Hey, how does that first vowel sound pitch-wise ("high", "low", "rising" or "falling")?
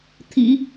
low